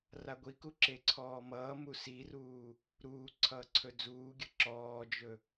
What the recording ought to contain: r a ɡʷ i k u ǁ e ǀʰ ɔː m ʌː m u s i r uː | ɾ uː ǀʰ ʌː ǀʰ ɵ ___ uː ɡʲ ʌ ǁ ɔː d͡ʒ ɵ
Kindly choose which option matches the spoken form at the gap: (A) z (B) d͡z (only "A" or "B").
B